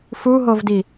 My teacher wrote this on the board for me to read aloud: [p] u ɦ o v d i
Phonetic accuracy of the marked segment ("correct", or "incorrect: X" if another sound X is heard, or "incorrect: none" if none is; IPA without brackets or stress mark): incorrect: f